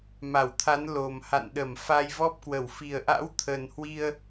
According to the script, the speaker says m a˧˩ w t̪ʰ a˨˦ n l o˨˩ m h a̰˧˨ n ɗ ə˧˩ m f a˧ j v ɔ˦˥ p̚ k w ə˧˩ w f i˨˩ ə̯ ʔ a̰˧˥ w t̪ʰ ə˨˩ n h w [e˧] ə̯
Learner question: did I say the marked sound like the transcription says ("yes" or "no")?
no